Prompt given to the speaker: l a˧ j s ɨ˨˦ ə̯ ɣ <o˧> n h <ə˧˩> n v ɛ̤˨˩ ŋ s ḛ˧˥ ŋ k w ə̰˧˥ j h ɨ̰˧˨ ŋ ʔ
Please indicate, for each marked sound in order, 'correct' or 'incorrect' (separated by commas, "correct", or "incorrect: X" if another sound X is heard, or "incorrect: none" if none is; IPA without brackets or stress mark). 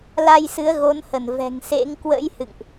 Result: incorrect: o˨˦, correct